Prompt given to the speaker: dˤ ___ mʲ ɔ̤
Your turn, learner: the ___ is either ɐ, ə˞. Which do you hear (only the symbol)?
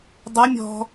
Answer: ɐ